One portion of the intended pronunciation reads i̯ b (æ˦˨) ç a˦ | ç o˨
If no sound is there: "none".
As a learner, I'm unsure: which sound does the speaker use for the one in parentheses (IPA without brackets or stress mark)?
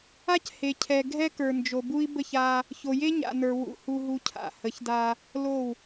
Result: ə˦˨